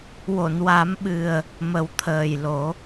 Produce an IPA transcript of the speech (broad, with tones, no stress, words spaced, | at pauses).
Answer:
wo˨˩˨nwa˨˩˦mɓɨ˨˩ə̯ | mə˨˩˦wt̪ʰəː˨˩jlo˨˩˦